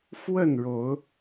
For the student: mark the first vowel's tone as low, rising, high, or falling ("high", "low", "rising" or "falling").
falling